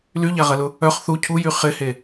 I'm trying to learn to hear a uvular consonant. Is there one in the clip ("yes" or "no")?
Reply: yes